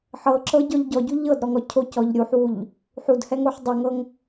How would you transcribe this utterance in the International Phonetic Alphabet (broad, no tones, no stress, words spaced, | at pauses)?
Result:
ħɤ ǁɤɟɔʎ ɟɔɟu ʎɤdɾɔŋɔ cʰocɔʎ ɾʲuħwuʎ | ħudhɛŋoħ dˤoŋɤŋ